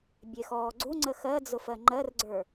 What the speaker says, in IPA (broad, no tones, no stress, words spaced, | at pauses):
bʲexɔːɡ͡ǀuŋ͡ǀə xɜd͡zʊfɜ ŋ͡ǃɜrɡ͡ǀə˞